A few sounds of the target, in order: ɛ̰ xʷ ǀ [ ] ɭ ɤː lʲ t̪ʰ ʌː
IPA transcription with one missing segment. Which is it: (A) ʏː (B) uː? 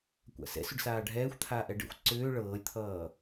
A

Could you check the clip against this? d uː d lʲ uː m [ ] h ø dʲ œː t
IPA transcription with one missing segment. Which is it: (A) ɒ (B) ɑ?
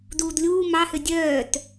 B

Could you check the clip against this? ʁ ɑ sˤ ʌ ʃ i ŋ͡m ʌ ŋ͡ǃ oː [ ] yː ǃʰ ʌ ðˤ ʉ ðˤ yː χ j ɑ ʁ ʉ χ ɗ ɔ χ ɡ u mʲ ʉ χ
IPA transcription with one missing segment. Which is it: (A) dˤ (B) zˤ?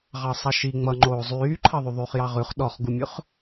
B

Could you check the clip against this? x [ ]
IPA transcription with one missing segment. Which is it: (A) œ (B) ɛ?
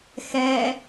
B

